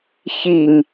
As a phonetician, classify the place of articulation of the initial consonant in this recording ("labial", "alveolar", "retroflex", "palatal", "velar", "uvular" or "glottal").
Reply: palatal